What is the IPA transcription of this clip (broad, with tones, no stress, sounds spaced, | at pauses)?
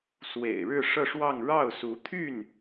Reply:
s w ḛ˨˩ ɪ̯ ɻ ɻ̩˥˧ ʂ ɤ˥˧ ʂ w ɑ˥˧ ŋ ɻ ɑ˥˩ ʊ̯ s u˧˥ t̪ʰ y˥˩ n